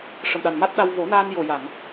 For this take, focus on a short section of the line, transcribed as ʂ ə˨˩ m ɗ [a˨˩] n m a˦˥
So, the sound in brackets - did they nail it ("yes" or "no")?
yes